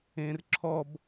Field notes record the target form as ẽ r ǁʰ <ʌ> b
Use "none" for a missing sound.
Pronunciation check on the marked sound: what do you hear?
ɔ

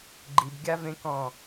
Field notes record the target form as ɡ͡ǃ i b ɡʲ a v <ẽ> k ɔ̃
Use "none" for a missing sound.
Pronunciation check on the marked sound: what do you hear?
ẽ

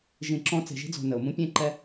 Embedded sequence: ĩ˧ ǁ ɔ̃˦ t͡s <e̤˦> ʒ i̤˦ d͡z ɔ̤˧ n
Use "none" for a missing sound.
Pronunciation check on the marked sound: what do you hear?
e̤˧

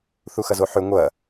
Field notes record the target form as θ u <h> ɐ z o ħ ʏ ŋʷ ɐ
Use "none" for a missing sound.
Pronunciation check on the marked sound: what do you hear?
x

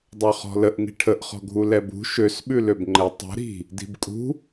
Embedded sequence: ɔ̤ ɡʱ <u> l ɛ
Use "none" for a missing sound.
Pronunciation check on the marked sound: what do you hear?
u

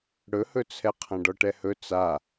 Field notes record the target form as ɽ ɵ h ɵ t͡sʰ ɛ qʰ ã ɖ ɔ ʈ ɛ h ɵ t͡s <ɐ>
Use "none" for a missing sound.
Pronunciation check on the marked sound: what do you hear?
a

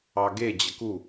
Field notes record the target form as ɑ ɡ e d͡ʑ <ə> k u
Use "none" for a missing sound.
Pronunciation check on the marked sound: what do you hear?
ə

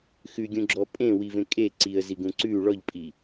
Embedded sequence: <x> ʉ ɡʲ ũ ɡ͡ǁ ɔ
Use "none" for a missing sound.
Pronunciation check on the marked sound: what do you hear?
x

